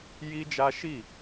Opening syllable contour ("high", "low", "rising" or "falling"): high